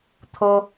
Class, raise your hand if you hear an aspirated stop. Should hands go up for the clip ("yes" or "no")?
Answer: yes